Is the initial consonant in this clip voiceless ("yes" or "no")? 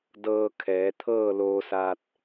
no